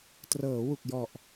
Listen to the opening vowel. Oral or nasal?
oral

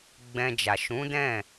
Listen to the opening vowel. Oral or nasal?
nasal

